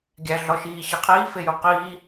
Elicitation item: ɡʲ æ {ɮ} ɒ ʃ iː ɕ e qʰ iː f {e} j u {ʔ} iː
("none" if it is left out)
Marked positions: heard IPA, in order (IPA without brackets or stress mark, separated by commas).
ɮ, e, q